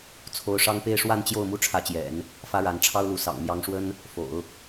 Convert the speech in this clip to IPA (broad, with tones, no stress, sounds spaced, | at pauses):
t͡sʰ o˧˥ ʊ̯ ʂ ɑ˥ ŋ p e˥˧ ɪ̯ ʂ w a˥˧ n t͡ɕ j o˥˩ ʊ̯ m u˥ ʈ͡ʂʰ ä˧˥ t͡ɕ j ɛ̰˨˩˦ n | f ä˥ ɻ a˧˥ n ʈ͡ʂʰ ɑ˥ ʊ̯ l u˧˥ s ɑ̰˨˩ ŋ m j ɑ˧˥ ŋ ʂ w ə˥ n | f o̰˨˩˦ ʊ̯